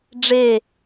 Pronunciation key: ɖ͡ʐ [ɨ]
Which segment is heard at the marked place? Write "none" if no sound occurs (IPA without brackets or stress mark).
e